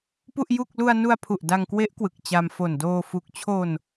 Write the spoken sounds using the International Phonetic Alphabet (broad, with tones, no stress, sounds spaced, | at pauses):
p u˥˩ ʔ j u˥˩ k̚ l u˧ a̯ n u˧ a̯ pʰ u˨˩ ʔ d a˧ ŋ k w e˦˥ ʔ k w ɯ˨˩ k̚ t͡ɕ a˧ m f o˨˩ n d oː˧ f u˨˩ k̚ t͡ɕʰ o˧ n